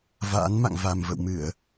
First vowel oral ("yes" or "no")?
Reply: yes